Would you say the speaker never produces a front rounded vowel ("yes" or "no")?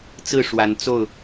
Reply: yes